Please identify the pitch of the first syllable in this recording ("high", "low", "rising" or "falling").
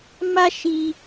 high